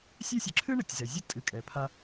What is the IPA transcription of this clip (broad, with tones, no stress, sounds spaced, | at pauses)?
sʲ e˦ sʲ ɨ˩ ǁʰ ɨ˥ ɳ ɐ˩ tʲ z ɛ˩ zʲ ɘ˥ tʼ ɨ˨ kʼ ɛ˩ pʰ a˦